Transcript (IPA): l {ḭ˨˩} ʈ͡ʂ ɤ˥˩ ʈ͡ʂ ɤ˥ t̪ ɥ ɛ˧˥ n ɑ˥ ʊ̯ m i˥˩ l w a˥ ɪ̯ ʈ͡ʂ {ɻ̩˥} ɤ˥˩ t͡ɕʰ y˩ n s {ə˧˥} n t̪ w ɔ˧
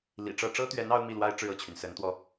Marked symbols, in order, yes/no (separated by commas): yes, no, yes